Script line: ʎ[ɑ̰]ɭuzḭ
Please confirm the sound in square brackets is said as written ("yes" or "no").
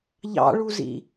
yes